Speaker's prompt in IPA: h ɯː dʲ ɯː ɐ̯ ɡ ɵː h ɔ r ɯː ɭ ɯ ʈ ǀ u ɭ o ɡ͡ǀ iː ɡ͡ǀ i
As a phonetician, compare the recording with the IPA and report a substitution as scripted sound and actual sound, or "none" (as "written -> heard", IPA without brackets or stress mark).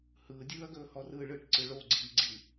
u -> ɯ